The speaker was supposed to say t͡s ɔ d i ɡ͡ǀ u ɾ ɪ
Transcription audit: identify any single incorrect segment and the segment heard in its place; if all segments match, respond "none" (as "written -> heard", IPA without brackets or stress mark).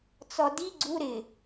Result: none